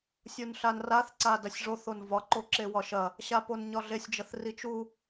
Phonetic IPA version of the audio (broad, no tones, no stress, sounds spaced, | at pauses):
sʲ u n ɬ a n r a θ ǀ a d ɐ sʲ ʐ o θ o n v ɒ ǃ o ǁ e w ɒ ʃ ɐ | ɕ a p o n ɲ ɒ ɮ e sʲ d͡ʒ ɐ θ r i t͡ʃ u